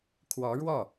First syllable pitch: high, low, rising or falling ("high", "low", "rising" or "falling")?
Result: rising